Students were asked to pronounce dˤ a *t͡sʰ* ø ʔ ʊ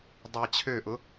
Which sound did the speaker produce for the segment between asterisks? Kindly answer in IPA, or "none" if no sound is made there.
t͡ɕʰ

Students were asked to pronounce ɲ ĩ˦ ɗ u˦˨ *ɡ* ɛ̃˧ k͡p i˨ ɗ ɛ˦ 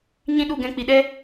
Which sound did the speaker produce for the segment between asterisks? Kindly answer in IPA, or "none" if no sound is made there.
ɡ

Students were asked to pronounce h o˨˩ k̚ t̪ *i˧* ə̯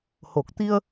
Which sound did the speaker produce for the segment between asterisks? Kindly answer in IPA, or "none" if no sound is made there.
i˧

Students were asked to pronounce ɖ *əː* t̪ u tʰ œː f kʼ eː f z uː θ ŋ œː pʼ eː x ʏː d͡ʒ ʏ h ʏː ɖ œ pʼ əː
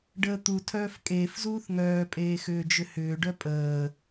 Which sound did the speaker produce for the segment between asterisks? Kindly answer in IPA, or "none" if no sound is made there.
əː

